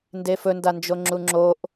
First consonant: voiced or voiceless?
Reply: voiced